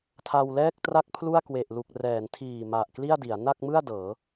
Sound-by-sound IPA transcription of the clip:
tʰa˧wlɛː˥˩k̚tra˥˩k̚ pʰlu˥˩a̯kwe˨˩ʔlu˨˩k̚ rɛː˩˦ntʰiː˨˩ ma˨˩ʔkli˥˩a̯di˩˦a̯ na˥˩k̚mɯ˥˩a̯ dɤː˩˦

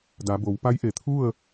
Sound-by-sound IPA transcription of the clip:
da˩˧bo˩˧w pa˧˥jʔe˩t̪ʰu˥˨ə̯

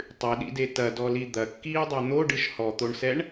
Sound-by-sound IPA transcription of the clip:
tˤɨɗḭde tɐdɔli d̪ɐkːiːdˤɛ n̪oɖɨʃ hɔt̪oɳsɛɳ

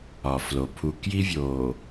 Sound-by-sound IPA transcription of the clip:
ɒ˨flo˨ pʰu˨ kji˦vʲo˨

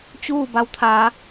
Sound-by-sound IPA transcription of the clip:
t͡ɕuː˥˨ ba˧wt̪ʰaː˩˧

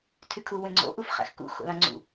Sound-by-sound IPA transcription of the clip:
tʰykʰu wẽŋ͡ǀo̰ ʔufχæ̰xkṵ xo̰lɑ̃ŋ͡ǀṵ

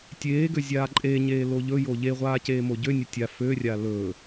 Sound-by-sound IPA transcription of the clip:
tʲeːɡø zʲaːǃʼeɲeː loʎɵjo ʎeʁʷaː ceːmoɟønʲɵ tʲa førʲa lɵ

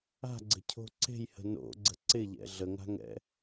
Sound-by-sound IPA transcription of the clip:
a̤ɡ͡ǀə̤cʰo̤ ǀe̤jhə̤ no̰ɡ͡ǀə̤ ǀɪʎɛ̰ ɮəŋa̤ŋɛ̰

